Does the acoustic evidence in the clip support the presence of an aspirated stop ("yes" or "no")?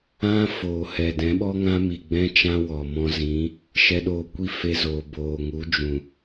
no